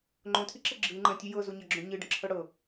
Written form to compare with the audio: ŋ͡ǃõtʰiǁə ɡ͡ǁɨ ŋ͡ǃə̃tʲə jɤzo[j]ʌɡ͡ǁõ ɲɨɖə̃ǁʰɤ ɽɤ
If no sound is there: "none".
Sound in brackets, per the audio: ɲ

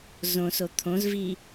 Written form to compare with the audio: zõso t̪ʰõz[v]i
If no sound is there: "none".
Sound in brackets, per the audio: v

